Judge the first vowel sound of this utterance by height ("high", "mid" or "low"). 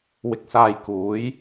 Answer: high